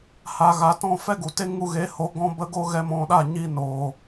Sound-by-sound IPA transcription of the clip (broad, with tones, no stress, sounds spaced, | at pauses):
h a˨ ɣ a˨ t ɔ̃˦˨ f ɛ˦ ɡ u˨ t e˦ ŋ u˧ ɣ eː˨˦ h o˨˦ ɡ ɔ̃˦ b ə˦ ɡ o˦ ɣ ɛ˦ m ɔ̃˧ ɗ a˦˨ ɲ i˧ n oː˨